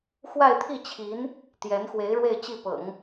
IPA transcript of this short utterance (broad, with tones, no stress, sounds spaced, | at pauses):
x w a˥˧ ɪ̯ t̪ʰ i˥˩ t͡ɕʰ i˧˥ n | t̪ j ɛ˧˥ n x w e˧˥ ɪ̯ ɻ w e˥˧ ɪ̯ t͡ɕ i˥˩ p ɤ̰˨˩˦ ŋ